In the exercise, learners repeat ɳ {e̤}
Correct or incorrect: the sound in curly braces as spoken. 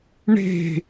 correct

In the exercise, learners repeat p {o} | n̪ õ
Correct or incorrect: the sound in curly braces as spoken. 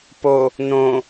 correct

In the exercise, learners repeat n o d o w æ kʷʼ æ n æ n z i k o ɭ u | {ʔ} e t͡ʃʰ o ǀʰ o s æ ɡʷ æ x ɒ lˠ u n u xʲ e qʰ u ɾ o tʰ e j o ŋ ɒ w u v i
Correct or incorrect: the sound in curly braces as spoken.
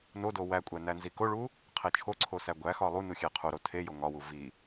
incorrect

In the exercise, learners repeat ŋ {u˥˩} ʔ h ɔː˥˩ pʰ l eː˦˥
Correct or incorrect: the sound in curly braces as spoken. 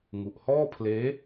incorrect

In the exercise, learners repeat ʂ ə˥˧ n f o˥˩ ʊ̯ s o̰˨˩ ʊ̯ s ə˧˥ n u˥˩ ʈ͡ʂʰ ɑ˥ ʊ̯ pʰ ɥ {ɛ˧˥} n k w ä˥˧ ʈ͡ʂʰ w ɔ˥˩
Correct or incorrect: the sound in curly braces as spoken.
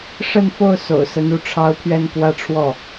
incorrect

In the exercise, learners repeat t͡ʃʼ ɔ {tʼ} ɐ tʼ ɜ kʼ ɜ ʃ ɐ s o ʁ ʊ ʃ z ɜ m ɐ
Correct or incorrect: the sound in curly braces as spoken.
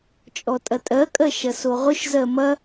correct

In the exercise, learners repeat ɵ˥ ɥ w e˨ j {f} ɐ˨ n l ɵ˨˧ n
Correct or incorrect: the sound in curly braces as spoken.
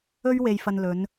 correct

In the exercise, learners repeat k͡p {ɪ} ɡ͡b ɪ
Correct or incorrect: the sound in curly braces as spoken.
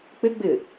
correct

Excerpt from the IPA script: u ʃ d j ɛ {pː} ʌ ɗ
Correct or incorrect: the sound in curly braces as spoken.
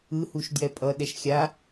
incorrect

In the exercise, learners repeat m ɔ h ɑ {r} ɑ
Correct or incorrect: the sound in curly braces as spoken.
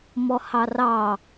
correct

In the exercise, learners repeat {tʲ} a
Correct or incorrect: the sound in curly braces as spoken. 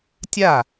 correct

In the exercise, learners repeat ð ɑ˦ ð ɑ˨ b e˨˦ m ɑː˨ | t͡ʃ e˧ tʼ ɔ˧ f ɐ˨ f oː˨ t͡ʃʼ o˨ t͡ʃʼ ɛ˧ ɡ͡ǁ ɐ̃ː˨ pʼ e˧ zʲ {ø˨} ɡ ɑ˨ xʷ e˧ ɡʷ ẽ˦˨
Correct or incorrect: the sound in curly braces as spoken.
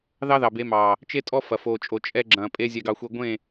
incorrect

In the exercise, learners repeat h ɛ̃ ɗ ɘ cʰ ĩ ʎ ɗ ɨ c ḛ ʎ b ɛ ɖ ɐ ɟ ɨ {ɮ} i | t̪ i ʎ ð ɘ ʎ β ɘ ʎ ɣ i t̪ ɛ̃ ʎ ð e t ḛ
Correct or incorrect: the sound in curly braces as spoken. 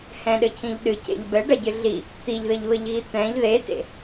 correct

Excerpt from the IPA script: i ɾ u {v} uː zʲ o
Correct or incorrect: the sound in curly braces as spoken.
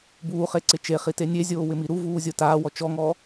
correct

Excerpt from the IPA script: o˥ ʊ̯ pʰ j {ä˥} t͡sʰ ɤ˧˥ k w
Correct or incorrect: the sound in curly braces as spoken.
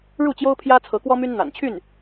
correct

